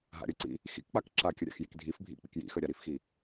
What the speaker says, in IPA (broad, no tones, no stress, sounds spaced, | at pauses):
ɦ a̰ ɾʲ ə ǀ ḭ | x ḭ k k͡p a k ǁ a kʲ ə ɾʲ a̰ x j i k dʱ i f bʱ ḭ k͡p ḭ k j ḭ x ə ɾʲ a ɾ i f x i